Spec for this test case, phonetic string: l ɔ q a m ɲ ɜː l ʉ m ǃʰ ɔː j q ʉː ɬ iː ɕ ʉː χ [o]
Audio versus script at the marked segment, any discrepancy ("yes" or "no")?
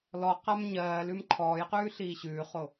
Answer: no